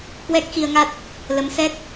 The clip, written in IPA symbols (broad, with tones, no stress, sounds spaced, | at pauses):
k w ɛ˦˥ k̚ x i˧ ə̯ ŋ a˦˥ t̚ | l ə˨˦ m s ɛ˦˥ k̚